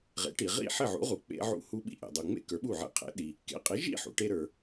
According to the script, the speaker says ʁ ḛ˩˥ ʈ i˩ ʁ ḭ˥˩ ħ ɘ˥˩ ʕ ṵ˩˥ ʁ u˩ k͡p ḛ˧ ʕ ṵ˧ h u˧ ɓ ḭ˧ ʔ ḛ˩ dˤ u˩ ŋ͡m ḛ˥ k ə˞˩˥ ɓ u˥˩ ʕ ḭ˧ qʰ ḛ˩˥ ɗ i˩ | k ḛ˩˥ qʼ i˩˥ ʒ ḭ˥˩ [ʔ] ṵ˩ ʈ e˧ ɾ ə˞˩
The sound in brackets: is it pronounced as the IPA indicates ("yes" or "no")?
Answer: no